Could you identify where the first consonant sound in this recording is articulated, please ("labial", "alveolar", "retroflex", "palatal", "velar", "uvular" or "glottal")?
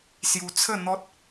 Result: alveolar